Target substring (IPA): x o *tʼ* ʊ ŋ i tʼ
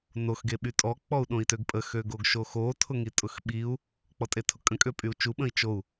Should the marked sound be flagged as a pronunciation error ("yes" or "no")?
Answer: yes